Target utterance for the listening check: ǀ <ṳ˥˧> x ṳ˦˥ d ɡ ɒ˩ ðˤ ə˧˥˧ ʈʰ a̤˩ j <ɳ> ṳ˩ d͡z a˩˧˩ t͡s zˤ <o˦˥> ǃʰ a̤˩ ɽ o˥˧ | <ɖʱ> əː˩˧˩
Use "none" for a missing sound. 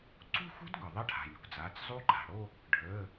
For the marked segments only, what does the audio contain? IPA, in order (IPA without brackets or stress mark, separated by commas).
ṳ˥˧, ɳ, u˦˥, ɖʱ